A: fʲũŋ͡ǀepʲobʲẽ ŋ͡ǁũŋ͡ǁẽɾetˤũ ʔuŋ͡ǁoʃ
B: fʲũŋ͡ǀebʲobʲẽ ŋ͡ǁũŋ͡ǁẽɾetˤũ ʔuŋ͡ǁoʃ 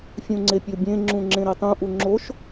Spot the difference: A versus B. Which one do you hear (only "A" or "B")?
A